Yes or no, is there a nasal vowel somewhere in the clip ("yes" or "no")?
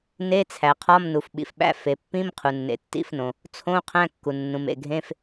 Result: yes